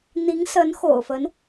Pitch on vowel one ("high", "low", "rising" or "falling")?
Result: rising